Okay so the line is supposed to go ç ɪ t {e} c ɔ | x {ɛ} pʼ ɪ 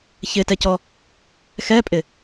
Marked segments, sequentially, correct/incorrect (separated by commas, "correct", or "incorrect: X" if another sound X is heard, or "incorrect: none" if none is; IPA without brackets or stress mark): incorrect: ɛ, correct